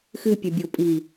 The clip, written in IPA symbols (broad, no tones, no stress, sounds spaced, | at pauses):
x ɨ pʲ ɨ bʲ o pʼ i